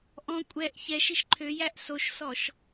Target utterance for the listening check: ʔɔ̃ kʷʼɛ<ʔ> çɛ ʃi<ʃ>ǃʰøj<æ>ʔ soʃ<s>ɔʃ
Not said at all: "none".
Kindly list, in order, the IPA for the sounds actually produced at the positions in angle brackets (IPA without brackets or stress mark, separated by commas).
ʔ, ʃ, æ, s